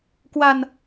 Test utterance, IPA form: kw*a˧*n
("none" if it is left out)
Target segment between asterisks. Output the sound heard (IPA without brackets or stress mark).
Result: a˧